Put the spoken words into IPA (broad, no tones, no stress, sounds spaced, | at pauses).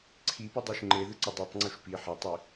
ǀʰ i p ʉ dˤ o ʃ ŋ͡ǃ e ð ɨ ǀ ɵ dˤ ʉ tˤ ŋ͡ǀ u ʃ p i ħ ɐ tˤ i